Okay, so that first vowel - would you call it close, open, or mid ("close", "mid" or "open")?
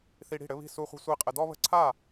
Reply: close